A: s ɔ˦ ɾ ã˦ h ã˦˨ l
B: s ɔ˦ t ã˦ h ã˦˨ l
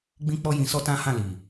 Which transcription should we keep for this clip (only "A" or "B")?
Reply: B